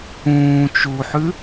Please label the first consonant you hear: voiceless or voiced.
voiceless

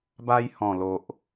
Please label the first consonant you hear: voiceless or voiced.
voiced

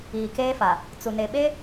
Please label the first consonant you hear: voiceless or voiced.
voiceless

